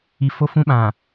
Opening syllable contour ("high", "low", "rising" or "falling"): low